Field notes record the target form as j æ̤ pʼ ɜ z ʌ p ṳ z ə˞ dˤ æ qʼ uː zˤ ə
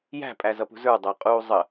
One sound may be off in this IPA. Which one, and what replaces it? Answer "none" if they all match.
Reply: ɜ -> æ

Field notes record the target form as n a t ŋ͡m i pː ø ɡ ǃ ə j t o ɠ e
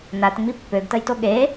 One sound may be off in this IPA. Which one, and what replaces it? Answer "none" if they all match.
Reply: ǃ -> t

